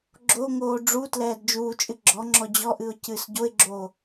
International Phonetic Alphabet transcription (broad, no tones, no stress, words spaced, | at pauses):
ɡ͡ǁoŋoː ɖ͡ʐutlɛːd d͡ʒuːt͡ʃʼɨ ɡ͡ǁɔŋ͡ǁɔ d͡ʑɔʔɨʊ̯ cɨːsɟoɪ̯ɡ͡ǁoː